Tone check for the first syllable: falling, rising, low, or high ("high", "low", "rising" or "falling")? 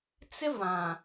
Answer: high